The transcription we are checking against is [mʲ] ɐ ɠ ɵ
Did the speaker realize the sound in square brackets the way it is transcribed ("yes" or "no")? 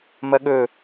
no